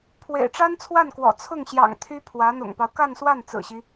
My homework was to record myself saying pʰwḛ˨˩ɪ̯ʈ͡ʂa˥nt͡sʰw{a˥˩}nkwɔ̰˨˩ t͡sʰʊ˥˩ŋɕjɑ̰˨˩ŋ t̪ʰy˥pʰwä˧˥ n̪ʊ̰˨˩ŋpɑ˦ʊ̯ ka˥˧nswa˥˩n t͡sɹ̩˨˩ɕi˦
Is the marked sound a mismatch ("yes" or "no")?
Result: no